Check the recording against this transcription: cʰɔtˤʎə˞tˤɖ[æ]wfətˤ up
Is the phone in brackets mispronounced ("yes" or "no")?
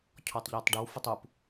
yes